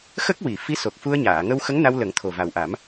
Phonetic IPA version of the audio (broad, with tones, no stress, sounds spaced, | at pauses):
x ə˦˥ k̚ w i˨˩˨ f i˧˥ s o˨˩ k̚ f u˧ ə̯ ɲ aː˨˩˨ ŋ ə˧ w x ə˧˥ ŋ n a˧ w l ə˨˩˦ ŋ t̪ʰ o˨˩ v a˨˩ w ʔ a˨˩˦ m